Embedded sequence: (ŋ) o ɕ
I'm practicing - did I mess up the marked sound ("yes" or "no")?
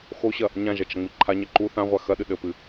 yes